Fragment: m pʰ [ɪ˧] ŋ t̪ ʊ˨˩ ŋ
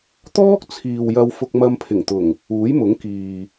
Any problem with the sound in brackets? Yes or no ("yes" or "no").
yes